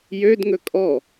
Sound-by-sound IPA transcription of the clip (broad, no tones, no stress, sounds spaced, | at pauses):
j ø d ŋ ɵ kʼ ɔ